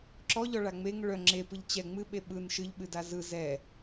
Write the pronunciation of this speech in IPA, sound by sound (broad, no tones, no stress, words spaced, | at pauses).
ǁɔʎɔɭa ŋ͡meŋ ɭœ ŋ͡ǁepɯʎ t͡ɕɛ ŋ͡mɨɓe ɓɯn ʃɨʎɓɨda zɯ zɛ